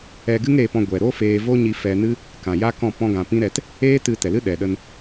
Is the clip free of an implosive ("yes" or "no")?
no